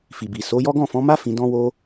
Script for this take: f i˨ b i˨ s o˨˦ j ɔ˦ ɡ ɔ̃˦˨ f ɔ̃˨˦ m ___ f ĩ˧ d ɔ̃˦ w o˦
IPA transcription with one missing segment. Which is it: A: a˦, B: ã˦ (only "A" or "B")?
A